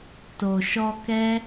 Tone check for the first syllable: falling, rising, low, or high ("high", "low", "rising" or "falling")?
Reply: low